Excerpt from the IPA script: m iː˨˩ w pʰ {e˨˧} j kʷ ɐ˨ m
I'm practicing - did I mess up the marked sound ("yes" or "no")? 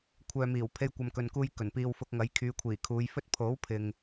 yes